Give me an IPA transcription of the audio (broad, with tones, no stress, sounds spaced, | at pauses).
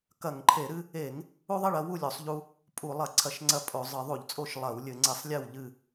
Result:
k ɐ˧˩˧ ŋ ǃʰ e˧˩˧ ɾ ɨ˦ | e˧˩˧ ŋ | u˦ ðˤ ɘ˥˨ ɭ ɐ˦ w u˥˨ lʲ o˧˩˧ sˤ ʎ u˦ | pʼ u˧˩˧ lˠ ɐ˧˩˧ ǀʰ ɐ˧˩˧ ʃ ŋ͡ǀ ɐ˦ pʼ o˧˩˧ zˤ ɨ˧˩˧ ðˤ u˧˩˧ ʎ t͡sʼ o˥˨ ʃ lˠ ɐ˧˩˧ w lʲ ɘ˧˩˧ ŋ͡ǀ e˧˩˧ sˤ lʲ e˥˨ w ʎ ɨ˥˨